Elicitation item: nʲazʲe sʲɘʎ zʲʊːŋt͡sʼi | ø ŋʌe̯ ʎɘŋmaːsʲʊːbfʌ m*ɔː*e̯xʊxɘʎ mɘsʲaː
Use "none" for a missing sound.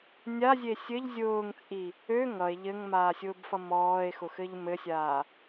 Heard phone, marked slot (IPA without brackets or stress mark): ɔː